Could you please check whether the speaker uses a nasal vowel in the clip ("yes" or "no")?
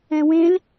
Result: yes